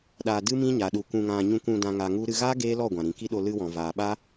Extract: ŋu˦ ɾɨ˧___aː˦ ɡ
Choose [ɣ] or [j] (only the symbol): ɣ